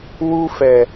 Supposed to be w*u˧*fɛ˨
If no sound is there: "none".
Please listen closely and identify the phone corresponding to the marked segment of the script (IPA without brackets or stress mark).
u˧